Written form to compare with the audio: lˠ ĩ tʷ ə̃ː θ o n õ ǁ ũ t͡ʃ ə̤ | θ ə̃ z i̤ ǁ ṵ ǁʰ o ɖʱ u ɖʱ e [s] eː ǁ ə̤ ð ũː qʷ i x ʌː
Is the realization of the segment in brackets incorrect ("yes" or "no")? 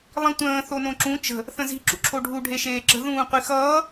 yes